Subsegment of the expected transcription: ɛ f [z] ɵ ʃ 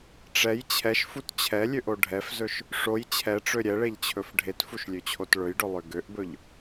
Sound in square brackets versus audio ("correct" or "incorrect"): correct